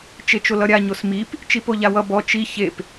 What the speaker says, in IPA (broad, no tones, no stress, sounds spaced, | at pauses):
t͡ʃ e t͡ʃ o l ʌ ɾʲ a ɲ o s m i p | t͡ʃ i p o ʎ a w ʌ b ɔ t͡ʃ i ç e p